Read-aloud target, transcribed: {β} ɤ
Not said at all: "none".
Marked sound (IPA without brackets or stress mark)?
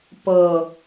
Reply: p